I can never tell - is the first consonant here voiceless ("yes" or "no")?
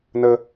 no